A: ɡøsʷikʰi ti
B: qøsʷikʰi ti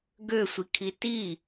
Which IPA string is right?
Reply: A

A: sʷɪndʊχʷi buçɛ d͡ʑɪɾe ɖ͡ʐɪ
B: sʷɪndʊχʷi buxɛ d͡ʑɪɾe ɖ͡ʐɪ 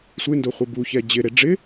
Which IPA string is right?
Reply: A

